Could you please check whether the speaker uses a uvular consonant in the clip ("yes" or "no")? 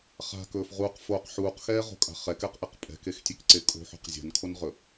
yes